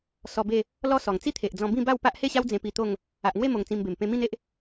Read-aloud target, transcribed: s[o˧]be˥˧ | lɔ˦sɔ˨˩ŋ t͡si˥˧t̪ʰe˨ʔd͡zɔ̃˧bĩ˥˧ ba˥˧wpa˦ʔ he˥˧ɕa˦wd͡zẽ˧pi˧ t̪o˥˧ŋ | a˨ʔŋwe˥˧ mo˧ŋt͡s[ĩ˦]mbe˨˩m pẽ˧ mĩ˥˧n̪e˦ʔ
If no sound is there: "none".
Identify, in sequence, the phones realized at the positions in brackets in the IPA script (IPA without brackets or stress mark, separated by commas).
ɔ˧, ĩ˧